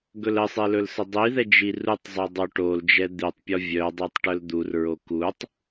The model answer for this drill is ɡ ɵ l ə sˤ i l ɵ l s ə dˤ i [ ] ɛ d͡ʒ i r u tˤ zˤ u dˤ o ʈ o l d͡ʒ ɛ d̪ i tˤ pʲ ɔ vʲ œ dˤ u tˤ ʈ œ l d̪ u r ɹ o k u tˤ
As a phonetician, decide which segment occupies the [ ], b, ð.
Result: ð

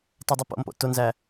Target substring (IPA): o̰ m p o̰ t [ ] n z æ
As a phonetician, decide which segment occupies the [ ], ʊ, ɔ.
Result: ʊ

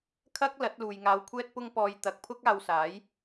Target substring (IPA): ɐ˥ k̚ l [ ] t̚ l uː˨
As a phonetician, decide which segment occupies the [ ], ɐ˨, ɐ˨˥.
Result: ɐ˨˥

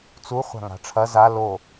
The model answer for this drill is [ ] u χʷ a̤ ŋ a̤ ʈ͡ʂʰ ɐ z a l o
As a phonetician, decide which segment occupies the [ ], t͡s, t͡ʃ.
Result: t͡s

